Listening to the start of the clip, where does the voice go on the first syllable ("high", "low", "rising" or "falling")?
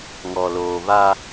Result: low